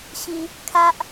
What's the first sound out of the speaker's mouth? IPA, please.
ɕ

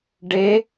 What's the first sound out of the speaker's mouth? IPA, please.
ɖ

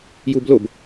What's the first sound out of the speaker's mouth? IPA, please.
j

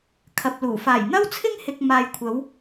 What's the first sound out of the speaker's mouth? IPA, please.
kʰ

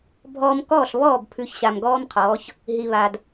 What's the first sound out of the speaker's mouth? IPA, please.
bʱ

